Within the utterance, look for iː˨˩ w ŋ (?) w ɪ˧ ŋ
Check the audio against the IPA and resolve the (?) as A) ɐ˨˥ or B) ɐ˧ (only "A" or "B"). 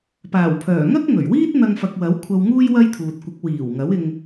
A